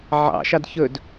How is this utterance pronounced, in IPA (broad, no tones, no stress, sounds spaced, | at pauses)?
ʕ ɑ̰ ʃ ɑ d ç ɵ d